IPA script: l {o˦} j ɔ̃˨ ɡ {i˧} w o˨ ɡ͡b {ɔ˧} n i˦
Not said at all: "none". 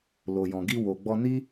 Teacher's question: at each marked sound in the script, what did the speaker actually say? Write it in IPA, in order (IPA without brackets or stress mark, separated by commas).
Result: o˨, i˧, ɔ˧